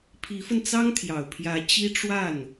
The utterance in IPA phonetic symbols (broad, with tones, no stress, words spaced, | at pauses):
pʰi˧˥fə˧nt͡sɑ˥ŋ t̪ʰjɑ˨˩ʊ̯pʰjä˧˥ t͡ɕi˥ ʈ͡ʂwa˥˩n